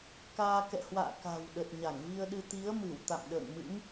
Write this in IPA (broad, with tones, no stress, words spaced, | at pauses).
kaː˧ kɛ̰˧˨hwa̰ː˧˨ ka̤˨˩wɗə˨˩t̚ ɲa˧˩ŋvi˧ə̯ɗɨ˧ t̪i˨˦ə̯mɨ˧˩w t̪a̰˧˨mɗə̰ː˧˨ŋmɨ̰˧˥ŋ